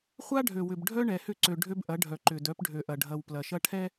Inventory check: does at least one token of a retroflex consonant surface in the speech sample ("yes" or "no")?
yes